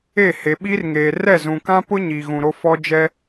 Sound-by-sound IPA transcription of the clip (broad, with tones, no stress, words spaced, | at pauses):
e˦˨he˨ɓiː˦rŋeː˨ rɛ˦˨zũ˨kã˦pʊ˦ ɲiː˨ɣũ˨ɾo˦ fɔ˦d͡ʒɛ˦